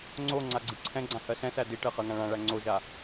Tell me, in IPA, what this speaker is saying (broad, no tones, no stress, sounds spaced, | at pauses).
ŋ͡ǀ o ŋ͡ǀ a ɡ͡ǀ i ǀʰ ɛ̃ ɡ͡ǀ ã h ɜ s ɛ̃ s æ d i ʈ ɜ χ ɜ ŋ ã ɭ ã ɭ æ ŋ͡ǀ o ʒ a